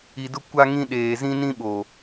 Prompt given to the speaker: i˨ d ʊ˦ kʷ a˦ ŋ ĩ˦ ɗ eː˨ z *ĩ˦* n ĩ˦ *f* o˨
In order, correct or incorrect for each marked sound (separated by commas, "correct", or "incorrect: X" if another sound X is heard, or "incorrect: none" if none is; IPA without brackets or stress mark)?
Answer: correct, incorrect: ɓ